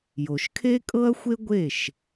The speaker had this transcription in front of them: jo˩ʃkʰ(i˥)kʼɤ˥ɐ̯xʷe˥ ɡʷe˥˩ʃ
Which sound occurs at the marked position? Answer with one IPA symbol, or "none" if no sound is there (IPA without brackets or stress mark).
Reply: e˥